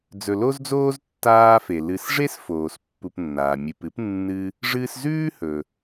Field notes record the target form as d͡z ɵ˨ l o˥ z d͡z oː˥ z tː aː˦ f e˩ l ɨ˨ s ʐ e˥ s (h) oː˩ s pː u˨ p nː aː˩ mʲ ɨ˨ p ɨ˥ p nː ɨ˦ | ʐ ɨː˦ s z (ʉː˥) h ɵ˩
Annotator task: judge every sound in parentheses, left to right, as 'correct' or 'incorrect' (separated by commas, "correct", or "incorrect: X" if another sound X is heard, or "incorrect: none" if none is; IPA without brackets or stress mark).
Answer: incorrect: f, correct